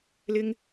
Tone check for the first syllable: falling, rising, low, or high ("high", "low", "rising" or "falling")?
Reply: high